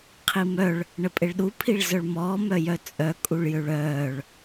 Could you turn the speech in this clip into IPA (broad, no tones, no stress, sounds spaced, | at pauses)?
qʰ i m œ ɭ | ɳ ə pʼ e ɭ ɗ u pʰ i ɭ z œ ɭ m ɔː m œ j œ t͡sʼ œ kʼ u ɭ j ø ɭ œː ɭ